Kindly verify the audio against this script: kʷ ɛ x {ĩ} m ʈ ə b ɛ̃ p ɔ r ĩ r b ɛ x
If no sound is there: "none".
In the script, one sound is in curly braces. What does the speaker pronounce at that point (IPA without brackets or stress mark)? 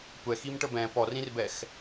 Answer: i